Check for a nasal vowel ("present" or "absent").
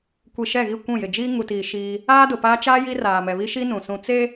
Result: present